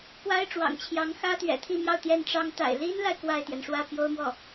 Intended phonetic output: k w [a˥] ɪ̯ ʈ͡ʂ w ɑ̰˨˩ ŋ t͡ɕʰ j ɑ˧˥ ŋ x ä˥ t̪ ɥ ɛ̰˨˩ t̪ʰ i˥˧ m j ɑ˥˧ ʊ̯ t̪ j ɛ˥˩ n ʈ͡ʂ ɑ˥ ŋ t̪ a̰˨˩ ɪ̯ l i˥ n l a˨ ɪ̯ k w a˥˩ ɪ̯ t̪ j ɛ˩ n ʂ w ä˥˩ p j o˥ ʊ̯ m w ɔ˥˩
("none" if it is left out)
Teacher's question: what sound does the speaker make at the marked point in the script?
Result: a˥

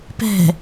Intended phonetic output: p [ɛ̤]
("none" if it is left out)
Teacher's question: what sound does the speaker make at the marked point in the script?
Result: ɛ̤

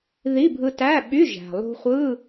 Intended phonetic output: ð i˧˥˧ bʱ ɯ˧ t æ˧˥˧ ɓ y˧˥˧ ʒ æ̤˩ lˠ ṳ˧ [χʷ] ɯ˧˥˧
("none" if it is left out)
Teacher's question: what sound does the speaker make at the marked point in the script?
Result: χʷ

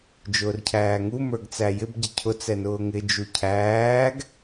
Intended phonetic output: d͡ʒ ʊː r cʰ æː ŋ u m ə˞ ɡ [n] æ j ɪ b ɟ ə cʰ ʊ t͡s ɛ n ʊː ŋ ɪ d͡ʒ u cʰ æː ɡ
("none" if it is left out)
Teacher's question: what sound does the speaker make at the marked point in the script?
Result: t͡s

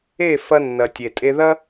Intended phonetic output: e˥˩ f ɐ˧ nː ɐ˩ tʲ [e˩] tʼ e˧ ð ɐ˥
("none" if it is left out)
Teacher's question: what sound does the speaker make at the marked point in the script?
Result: e˩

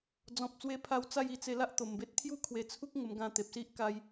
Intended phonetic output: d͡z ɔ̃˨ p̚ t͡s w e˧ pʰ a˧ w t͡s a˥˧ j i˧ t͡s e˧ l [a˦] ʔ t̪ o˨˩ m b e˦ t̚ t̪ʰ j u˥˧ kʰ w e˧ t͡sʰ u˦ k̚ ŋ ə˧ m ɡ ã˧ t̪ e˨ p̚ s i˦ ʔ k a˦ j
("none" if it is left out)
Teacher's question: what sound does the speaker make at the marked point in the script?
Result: a˦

